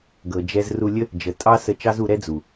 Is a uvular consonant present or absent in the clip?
absent